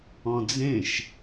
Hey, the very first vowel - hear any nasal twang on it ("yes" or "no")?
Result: yes